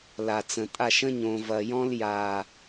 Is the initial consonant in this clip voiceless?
no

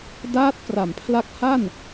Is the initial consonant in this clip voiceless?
no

